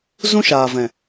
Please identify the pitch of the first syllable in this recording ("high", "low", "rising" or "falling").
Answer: high